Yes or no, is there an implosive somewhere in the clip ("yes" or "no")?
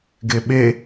yes